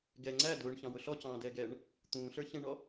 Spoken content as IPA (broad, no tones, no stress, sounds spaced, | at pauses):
ɡ ɛ ŋ͡ǀ æ d ʊː ɳ ç ɑ̃ w ʊ ɬ ɔ c ɑ̃ː d ɛː ɡ ɛː ɳ | t̪ ũː ɬ ə˞ ç ɛ̃ ɳ ɔ